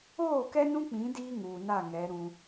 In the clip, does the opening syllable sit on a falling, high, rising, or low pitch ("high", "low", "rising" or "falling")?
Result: falling